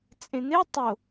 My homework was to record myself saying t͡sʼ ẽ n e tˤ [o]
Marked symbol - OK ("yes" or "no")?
yes